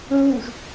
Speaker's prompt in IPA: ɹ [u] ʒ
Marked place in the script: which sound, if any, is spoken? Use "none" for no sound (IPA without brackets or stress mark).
u